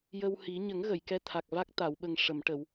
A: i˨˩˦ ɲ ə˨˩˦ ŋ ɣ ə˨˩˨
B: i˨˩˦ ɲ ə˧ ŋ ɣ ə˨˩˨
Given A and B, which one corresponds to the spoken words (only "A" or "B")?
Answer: A